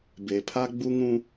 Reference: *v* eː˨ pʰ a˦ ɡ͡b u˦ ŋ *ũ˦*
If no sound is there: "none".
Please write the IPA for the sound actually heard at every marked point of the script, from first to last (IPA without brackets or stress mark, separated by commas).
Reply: b, ũ˦